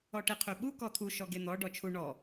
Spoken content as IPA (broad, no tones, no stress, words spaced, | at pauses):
ɔʈeqʰøɓu kɔt̪ʰu ʃɔɡen̪ɔ ɖɔt͡ʃʰu ɳɔ